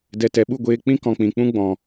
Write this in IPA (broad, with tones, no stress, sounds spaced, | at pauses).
d ɛ˨ t ɛ˨ ɓ u˦˨ ɡʷ eː˧ k͡p ĩ˦ k ɔ̃˧ k͡p ĩ˨ k͡p ũ˦ ɡ͡b ɔ̃˨